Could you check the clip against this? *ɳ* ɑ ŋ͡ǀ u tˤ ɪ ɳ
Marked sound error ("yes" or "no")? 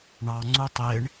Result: no